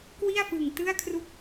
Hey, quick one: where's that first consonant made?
velum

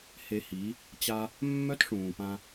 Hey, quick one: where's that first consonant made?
throat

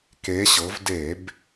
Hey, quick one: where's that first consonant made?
velum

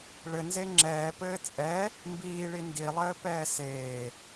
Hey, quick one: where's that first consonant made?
retroflex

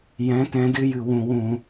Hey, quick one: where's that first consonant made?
palate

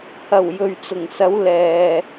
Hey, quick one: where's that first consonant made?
throat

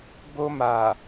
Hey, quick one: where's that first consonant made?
lips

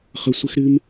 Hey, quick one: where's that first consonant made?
uvula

